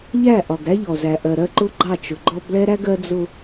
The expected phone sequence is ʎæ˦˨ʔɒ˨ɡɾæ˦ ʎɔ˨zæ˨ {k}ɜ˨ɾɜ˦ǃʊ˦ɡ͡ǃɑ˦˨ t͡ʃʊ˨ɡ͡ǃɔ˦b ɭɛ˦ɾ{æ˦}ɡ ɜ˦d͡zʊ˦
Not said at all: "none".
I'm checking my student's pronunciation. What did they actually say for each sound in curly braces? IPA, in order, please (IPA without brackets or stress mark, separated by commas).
ʔ, æ˦